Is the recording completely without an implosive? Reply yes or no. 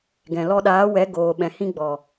no